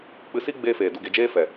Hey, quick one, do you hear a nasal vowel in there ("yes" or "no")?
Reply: no